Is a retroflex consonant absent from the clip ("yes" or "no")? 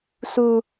yes